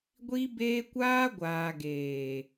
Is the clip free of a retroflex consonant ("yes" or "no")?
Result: yes